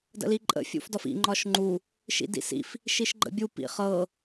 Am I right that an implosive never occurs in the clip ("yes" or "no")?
yes